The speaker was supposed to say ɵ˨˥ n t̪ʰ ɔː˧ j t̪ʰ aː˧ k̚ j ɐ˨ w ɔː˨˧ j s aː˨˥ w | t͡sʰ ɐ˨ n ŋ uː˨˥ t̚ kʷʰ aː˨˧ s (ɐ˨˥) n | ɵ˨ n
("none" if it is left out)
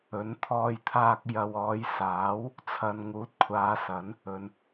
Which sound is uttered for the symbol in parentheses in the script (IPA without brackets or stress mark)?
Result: ɐ˨˥